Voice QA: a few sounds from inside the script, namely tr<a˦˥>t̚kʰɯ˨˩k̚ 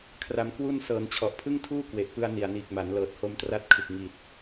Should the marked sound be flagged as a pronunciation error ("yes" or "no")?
no